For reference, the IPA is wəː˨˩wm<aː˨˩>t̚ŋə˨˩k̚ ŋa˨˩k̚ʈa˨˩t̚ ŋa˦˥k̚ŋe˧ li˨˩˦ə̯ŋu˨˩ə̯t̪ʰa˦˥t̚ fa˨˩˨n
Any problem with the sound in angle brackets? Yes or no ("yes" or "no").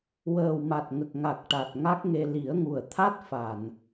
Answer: yes